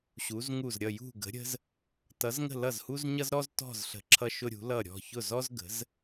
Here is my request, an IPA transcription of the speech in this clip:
ɕ u˩˧ z ŋ u˧˩ z ɾʲ ʌ˧˩ j ṳ˧˩ ɡ ə̤˩˧ ɾʲ ə̤˧ z | t ʌ˩˧ z ŋ ə̤˧˩ l ʌ˧˩ z h u˧ z ɲ ʌ˧ z ɾ ɔ˧ z t ɔ̤˧˩ z ɬ ə̤˩˧ ǁʰ ʌ˧ ʃ ʊ˧ ɾʲ ṳ˩˧ l ʌ˧˩ ɾʲ ɔ̤˧˩ ç ʊ˧˩ z ɔ˧ z ɡ ə̤˩˧ z

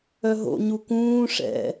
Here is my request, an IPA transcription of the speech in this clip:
œ ɦ o̰ ɲ u k ũː ʂ ɛ̰

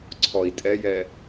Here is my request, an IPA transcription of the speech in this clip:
ǀʰ ɔ i̯ tʼ ɛ j ɛ

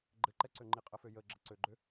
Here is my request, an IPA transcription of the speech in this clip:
ɡ͡ǃ ɘ ǃ ɛ ǀ ø ŋ͡ǃ i qʼ ə f ø j ə ɡ͡ǁ ə ǀ ø ɡ͡ǃ ø

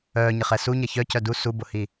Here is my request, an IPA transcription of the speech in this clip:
œː ɲ ɪ χ ɛ s u ɲ ɐ ç œ c œ d u s u b ʊ h i

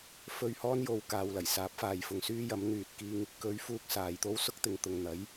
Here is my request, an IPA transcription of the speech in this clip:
f ɵ˧ ɥ h ɔː˥ n j o˧ w k aː˨ w l ɐ˨˩ j s aː˨˥ p̚ f aː˨˧ j f ʊ˨ ŋ s yː˥ j ɐ˨˥ m n̪ yː˨ t̚ k iː˧ ŋ | k ɵ˨˧ ɥ f uː˧ k̚ s aː˨ j t̪ o˥ w s ʊ˥ k̚ t̪ ɪ˨ ŋ t̪ ʊ˨ ŋ n̪ ɐ˨˥ j

